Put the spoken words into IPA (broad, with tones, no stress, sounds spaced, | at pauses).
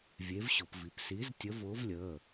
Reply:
vʲ e˨˥ v ɕ ʊ˩˧ p v i˩˧ p s iː˨˥ z tʲ ə˨˥ v ʊː˨˥ v lʲ əː˩˧˩